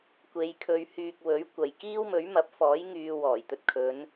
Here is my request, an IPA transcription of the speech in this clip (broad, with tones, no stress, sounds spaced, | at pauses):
kʷ e˧ j kʰ ɵ˧ ɥ h yː˨ k̚ w ɵ˨˥ ɥ kʷ ɐ˨ j k iː˥ w m ɵ˨˥ ɥ m ɐ˨˥ p̚ f ɔː˨˥ j ŋ yː˧ w ɔː˨˩ j t̪ ɵ˧ t̚ kʰ ɵ˨˧ n